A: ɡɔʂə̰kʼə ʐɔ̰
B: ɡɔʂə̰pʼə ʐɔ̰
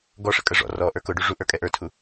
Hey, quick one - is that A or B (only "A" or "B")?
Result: A